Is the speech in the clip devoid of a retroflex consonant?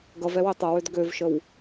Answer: yes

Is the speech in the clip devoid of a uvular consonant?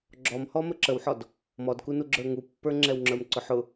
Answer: yes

